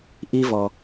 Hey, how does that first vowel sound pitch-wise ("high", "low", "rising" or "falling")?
high